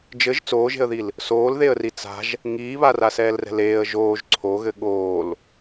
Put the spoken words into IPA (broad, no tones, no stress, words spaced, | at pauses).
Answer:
d͡ʒɘʒ t͡soːʒe̤ə̯ðil | soːlðeə̯ri t͡sa̤ʒ | ŋiːβara sɛːlrɛ̤leːə̯ ʒoːʒ ǀʰoɣɘ ɠoːl